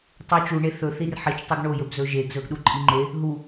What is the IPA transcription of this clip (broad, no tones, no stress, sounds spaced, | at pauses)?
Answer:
tˤ u t͡ʃ u ɳ e θ ɵ θ i r ħ i t͡ʃ tˤ ɵ ɡ ɳ o j ɵ b z ɵ ʒ e ɡ z ɵ ɡ ɗ u ǃʼ i ŋ͡ǃ e | ɦ u